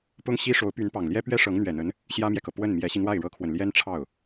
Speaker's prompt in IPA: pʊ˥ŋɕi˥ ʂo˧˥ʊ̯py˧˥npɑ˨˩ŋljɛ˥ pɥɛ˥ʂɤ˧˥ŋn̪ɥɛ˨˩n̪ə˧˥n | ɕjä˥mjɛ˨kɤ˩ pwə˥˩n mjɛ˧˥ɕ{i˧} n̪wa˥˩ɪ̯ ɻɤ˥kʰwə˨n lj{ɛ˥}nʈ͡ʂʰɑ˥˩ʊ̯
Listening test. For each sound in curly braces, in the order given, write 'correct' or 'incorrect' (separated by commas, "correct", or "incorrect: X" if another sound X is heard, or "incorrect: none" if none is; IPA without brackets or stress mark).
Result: correct, correct